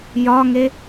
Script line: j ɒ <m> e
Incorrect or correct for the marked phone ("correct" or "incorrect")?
incorrect